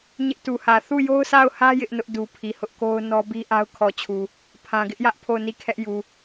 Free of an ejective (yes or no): yes